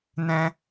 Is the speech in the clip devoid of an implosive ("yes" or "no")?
yes